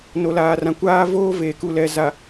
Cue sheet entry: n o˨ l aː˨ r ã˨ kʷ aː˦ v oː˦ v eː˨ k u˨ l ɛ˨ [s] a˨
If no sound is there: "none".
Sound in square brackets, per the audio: z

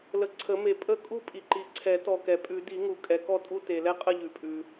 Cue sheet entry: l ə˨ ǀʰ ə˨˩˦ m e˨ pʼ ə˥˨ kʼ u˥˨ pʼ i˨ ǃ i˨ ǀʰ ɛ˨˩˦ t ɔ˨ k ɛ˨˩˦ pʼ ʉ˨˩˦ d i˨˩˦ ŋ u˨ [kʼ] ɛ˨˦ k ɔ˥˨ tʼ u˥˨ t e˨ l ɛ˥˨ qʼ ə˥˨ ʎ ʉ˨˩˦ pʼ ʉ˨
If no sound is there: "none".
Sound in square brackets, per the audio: kʼ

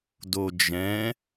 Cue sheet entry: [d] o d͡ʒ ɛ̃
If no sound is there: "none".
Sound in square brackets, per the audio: d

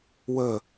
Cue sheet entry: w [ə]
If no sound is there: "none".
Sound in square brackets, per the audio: ə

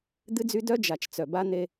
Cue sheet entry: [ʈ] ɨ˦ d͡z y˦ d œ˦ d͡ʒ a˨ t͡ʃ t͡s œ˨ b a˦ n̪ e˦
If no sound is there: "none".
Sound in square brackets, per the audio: d̪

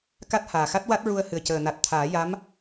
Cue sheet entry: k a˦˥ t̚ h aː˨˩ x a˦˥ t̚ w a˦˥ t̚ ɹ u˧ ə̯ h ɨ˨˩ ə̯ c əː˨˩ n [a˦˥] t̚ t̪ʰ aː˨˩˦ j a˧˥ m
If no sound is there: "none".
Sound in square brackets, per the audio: a˨˩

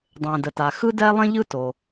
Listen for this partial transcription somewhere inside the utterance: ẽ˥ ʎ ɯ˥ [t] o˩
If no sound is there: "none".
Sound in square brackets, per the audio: t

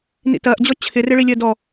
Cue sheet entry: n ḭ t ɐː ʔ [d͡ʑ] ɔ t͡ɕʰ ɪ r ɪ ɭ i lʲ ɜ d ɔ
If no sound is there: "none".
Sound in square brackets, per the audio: d͡ʑ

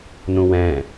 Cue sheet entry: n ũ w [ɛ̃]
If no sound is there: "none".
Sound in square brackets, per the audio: ɛ̃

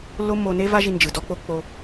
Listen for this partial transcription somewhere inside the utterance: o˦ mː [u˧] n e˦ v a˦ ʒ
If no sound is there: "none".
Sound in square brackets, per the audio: o˧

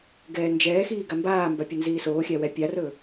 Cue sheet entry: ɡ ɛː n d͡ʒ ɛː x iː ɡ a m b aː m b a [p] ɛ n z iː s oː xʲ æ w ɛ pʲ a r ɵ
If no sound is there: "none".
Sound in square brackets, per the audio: pʲ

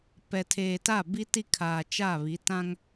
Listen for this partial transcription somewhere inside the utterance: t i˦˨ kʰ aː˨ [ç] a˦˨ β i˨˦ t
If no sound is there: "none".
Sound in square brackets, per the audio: t͡ʃ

